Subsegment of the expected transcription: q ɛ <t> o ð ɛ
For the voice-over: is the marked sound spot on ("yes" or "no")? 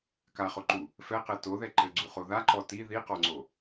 yes